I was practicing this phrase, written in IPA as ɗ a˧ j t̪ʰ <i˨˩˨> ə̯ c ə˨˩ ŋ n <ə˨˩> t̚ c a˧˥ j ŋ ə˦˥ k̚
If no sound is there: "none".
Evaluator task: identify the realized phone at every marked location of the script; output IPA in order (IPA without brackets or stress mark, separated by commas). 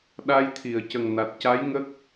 i˨˩˨, a˨˩